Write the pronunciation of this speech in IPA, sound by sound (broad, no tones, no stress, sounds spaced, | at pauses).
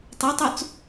tˤ e tˤ u t͡s